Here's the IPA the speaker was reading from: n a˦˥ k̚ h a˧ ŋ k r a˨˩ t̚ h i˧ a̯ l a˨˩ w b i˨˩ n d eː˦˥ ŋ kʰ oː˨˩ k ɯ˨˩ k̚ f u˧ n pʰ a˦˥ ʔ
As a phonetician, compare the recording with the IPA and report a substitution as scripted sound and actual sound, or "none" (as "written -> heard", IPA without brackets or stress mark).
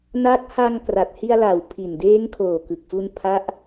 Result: b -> pʰ